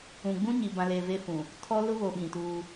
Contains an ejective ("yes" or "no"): no